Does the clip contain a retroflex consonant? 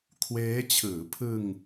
no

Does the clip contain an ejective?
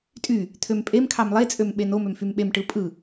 yes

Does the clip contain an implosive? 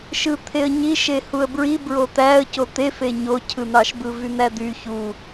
no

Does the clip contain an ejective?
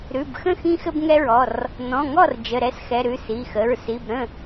no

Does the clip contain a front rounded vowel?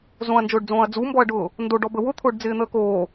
no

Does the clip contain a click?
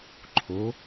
yes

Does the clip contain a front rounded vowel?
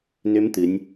yes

